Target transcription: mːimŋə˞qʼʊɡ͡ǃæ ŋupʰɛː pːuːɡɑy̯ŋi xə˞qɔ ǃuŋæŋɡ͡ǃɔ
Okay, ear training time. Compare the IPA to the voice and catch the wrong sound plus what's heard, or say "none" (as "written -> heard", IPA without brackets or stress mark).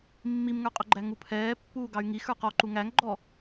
none